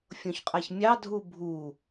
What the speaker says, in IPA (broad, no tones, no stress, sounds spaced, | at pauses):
fʲ õ ç qʼ æ ç mʲ ɑ dʱ u bʱ u